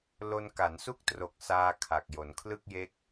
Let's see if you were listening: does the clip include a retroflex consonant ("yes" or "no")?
no